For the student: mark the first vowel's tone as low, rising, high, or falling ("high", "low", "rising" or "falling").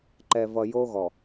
low